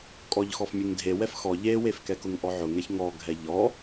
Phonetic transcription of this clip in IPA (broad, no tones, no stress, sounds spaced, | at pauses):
kʼ ɔ ʎ x ɔ f mʲ e ŋ dʱ e w ɛ f x ɔ ʎ e w e f k ɛ k ʊ ŋ ʔ ɔ ʕ ʊ ŋ ɛ ç ŋ ɔ ɡʱ ɛ ʎ ɔ